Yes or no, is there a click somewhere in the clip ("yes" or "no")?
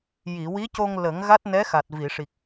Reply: no